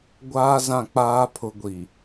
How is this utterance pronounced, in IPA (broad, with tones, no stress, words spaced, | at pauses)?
ɡʷaː˦zã˦˨ k͡paː˦pʰʊ˨˦ɡʷi˨